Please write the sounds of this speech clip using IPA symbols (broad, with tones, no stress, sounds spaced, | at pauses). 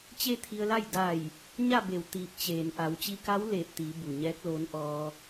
t͡ɕ e˥˨ t̪ʰ i˧ ə̯ l a˥˨ j d a˧˩ j | ɲ a˥˨ b e˧˩ w t̪ iː˧˩ p̚ t͡ɕ eː˩ n ʔ a˩˧ w t͡ɕ i˧ k a˧˥ w l eː˧˩ p̚ t̪ iː˩˧ b u˩ ɲ ɛː˧˥ k̚ l oː˧˥ n ʔ ɔː˧